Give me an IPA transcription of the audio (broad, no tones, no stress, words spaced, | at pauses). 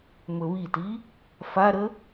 mɵβiti | faɾə